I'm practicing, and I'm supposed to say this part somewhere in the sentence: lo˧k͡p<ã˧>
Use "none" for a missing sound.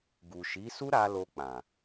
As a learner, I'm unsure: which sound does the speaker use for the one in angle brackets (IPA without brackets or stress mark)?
ã˨